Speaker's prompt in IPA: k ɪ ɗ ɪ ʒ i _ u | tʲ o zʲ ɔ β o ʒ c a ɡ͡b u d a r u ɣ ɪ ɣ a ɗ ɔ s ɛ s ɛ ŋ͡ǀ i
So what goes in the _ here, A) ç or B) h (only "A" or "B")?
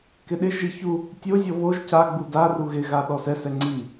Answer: A